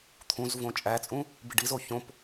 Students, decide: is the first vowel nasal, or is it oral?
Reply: nasal